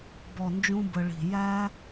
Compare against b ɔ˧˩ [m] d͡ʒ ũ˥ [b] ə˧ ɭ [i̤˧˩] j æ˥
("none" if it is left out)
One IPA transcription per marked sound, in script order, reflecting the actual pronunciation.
n, b, i̤˧˩

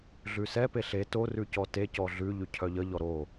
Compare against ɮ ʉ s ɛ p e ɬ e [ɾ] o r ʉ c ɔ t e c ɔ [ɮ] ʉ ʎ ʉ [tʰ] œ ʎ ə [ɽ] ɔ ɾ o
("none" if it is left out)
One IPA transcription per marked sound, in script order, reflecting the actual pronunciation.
t, ɮ, cʰ, ʎ

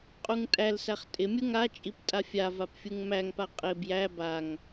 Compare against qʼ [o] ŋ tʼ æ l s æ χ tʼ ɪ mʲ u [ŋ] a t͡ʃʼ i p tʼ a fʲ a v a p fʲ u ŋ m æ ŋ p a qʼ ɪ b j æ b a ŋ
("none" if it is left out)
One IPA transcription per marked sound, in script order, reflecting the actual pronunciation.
u, ŋ

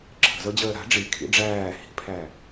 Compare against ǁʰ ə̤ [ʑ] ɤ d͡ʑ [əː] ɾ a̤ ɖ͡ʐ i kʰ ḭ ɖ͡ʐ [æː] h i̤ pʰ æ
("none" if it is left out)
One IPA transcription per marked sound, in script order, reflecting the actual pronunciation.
z, əː, æː

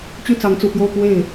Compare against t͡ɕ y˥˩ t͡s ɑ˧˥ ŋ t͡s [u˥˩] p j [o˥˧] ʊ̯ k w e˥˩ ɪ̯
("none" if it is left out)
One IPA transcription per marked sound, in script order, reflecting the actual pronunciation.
u˨˩, o˥˧

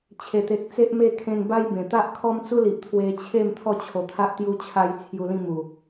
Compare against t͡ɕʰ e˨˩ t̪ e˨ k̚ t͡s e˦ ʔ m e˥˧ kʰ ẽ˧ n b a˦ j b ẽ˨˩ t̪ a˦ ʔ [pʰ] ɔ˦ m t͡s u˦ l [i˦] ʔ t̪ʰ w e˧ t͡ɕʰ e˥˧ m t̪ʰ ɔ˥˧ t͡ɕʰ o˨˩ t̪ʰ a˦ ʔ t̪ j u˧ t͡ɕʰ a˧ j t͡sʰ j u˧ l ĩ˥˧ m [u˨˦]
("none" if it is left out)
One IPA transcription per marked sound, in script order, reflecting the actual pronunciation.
kʰ, i˨, u˨˩

